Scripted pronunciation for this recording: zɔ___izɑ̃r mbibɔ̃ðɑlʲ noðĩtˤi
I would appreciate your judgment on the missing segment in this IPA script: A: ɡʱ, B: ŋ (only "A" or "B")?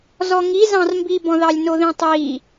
B